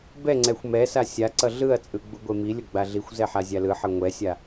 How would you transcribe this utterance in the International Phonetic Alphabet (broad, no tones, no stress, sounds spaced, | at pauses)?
b ɛ ŋ͡ǀ ɛ xʷ m ɛ s a sʲ a ǀ ʌ ɮ ɯ ɐ̯ t͡sʼ ɯ ɡ͡b u ɡʷ e m i lʲ ʌ ɡ͡b a ɮ i xʷ z ɛ ħ a zʲ a l ɯ ħ ʌ ŋʷ ɛ sʲ a